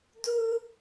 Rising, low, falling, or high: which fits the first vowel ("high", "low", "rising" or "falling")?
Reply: high